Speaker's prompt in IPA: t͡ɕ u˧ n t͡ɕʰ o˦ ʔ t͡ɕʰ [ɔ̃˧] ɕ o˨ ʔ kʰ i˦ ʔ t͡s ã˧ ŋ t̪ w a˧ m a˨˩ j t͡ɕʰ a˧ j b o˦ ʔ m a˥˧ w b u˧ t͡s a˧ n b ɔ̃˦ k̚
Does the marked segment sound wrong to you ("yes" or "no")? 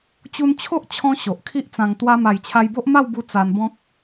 no